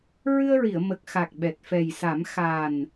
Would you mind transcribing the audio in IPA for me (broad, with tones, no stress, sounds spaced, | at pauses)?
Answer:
ɹ ɨ˧ ə̯ ɹ i˨˩˨ ə̯ m ə˨˩ k̚ x a˨˩ k̚ ɓ ɛ˨˩ t̚ f ɛ˨˩ j s a˨˩˦ m x a˨˩ n